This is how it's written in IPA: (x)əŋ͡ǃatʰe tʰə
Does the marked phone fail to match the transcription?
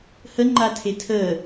yes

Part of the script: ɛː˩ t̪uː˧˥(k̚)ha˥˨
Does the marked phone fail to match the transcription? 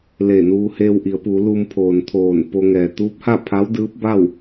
yes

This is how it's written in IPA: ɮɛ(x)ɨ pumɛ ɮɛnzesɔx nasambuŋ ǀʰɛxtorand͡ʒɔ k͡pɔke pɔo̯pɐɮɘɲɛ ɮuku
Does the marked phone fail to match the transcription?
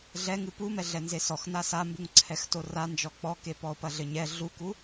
yes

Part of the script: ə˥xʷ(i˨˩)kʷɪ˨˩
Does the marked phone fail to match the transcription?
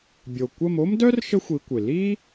yes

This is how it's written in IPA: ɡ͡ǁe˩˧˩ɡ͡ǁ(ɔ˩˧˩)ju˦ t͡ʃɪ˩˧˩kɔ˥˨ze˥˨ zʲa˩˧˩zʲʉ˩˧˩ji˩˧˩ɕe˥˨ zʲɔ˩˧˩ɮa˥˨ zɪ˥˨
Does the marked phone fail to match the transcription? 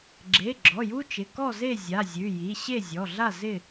no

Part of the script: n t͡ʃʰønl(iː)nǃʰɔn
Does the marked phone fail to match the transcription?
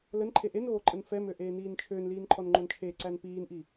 no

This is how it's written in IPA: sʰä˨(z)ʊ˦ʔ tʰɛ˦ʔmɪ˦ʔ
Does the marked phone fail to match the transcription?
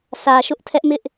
yes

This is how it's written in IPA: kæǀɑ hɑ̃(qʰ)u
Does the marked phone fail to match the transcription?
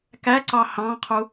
no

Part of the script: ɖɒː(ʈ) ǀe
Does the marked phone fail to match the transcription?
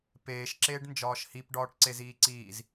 no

